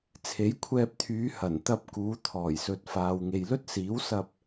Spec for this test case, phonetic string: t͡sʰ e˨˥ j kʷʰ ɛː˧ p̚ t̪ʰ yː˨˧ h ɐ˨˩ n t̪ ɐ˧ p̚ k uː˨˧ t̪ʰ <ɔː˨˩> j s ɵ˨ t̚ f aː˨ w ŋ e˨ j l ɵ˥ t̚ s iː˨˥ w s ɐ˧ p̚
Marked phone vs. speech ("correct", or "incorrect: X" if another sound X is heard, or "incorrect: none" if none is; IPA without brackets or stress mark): correct